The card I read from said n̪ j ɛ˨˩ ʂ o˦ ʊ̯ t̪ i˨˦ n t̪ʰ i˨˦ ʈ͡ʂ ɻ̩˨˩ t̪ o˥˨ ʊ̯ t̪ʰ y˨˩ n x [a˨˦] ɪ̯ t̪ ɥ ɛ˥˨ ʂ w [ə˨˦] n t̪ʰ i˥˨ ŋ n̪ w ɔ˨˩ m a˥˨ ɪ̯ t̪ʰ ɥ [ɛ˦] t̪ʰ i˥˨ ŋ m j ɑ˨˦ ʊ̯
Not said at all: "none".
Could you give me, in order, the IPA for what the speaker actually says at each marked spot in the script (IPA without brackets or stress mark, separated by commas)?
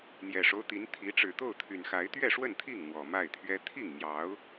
a˨˦, ə˥˨, ɛ˦